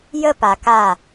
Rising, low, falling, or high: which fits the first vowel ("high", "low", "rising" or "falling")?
falling